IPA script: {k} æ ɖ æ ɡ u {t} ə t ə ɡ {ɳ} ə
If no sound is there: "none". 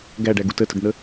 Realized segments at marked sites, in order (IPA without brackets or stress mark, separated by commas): ɡ, t, n̪